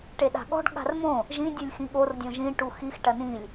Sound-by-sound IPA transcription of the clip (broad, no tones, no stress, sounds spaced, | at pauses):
ʈ e ɗ a̤ ɠ ɔ̤ ɖ ɠ a̤ r m õ | ʒ ĩ dʲ u lʲ x ĩ ɠ o r dʲ õ ʒ ĩ ʈ u x i x ʈ ɐ n ĩ lʲ